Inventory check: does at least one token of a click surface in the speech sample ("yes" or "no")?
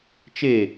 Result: no